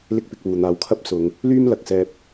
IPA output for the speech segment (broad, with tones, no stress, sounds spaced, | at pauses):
l ɪ˥ k̚ p ɪ˧ k̚ w uː˨ n̪ aː˨ w kʰ ɐ˥ p̚ s ʊ˨˧ ŋ | l yː˥ m l ɐ˨ k̚ s ɛː˧ p̚